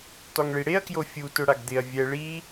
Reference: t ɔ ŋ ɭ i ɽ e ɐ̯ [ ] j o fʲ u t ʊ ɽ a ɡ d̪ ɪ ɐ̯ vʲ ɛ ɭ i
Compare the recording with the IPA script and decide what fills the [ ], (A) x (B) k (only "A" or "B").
B